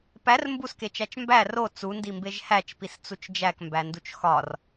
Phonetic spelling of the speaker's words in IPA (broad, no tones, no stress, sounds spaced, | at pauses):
p æ r m b u s k e t͡ʃ æ t͡ʃ m b æ r o t͡s u n d i m b e ʒ h æ t͡ʃ p i s t͡s u t͡ʃ d͡ʒ æ k m b æ n d u t͡ʃ x ɒ r